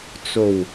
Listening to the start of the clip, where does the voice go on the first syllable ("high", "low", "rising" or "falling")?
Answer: low